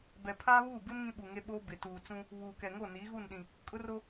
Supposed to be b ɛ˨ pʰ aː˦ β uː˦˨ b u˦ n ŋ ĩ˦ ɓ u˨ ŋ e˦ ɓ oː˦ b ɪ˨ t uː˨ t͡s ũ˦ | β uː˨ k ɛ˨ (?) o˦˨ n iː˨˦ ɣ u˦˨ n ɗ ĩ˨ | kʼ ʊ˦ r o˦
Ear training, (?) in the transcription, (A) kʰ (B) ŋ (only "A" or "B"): B